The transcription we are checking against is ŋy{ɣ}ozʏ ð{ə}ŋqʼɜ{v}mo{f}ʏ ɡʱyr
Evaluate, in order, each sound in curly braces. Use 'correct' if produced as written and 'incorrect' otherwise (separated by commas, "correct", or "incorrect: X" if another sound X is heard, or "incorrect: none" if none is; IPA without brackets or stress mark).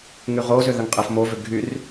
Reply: incorrect: ʁ, correct, incorrect: f, incorrect: v